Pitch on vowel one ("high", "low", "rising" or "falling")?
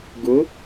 rising